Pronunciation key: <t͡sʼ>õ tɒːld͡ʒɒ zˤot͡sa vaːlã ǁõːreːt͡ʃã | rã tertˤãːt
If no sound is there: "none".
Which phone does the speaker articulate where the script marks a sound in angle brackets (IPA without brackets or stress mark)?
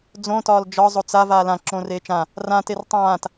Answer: d͡z